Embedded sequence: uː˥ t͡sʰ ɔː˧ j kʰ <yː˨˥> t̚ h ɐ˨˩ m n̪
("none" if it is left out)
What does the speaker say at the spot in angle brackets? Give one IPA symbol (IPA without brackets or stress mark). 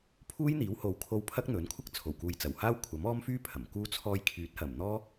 yː˨˥